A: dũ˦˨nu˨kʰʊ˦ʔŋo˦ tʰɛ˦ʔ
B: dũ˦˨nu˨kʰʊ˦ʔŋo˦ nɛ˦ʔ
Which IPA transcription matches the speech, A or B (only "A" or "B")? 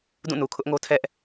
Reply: A